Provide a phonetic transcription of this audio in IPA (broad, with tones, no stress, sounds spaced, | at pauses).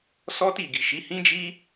s ɔ˦ t i˦˨ ɡ i˨ ʃ i˨˦ h ĩ˦ d͡ʒ i˦